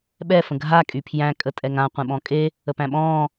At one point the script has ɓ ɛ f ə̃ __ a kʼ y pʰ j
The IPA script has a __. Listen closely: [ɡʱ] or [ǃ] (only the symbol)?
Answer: ɡʱ